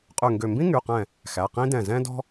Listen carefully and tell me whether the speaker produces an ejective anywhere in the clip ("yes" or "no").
yes